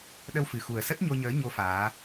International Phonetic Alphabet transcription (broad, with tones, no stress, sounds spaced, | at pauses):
ɗ ə˧ w f ɨ˨˩ x u˨˩ ə̯ s ə˦˥ t̚ ɲ o˧ ɲ əː˨˦ ɲ o˨˦ f aː˨˦